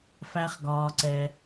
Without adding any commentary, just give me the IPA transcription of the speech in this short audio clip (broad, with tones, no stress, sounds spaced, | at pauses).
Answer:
f æ˦ χ ɡ ɒː˧ ǀ ɛ˧